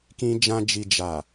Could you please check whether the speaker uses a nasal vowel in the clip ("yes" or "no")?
yes